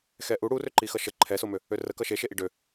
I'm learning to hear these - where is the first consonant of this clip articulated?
velum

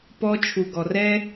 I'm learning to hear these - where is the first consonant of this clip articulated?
lips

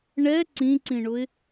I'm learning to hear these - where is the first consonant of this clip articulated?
retroflex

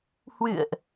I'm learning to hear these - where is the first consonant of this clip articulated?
throat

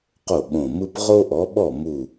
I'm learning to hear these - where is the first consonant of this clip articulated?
uvula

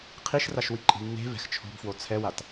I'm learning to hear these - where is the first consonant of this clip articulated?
uvula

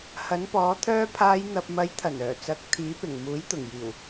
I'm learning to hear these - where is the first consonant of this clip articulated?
throat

